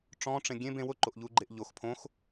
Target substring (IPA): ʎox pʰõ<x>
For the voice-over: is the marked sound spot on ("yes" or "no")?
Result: yes